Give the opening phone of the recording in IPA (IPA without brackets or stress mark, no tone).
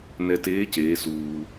n